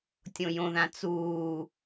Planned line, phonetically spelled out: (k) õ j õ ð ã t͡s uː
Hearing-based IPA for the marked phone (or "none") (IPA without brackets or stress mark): tʲ